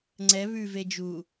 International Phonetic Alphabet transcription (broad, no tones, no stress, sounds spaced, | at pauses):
ŋ͡ǀ ɛ β ʉ v e d͡ʒ u